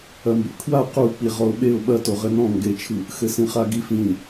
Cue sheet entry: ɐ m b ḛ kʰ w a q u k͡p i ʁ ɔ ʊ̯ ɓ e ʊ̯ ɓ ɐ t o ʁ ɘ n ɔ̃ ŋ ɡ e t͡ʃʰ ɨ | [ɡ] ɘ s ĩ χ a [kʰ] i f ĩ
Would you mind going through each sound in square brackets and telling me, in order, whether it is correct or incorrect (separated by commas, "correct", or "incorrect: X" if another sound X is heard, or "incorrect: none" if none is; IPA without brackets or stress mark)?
incorrect: x, incorrect: ɡ